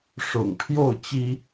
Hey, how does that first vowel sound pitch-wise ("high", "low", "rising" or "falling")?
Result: low